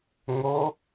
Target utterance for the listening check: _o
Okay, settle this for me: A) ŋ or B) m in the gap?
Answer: A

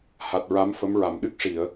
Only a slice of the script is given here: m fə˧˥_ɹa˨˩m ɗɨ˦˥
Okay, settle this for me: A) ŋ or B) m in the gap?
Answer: B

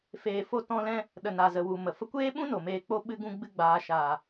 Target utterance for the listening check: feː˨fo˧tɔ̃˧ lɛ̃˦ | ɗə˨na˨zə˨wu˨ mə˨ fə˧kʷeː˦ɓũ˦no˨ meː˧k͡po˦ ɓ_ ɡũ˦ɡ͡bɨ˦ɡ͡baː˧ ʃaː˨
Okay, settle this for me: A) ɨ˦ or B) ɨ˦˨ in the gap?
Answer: A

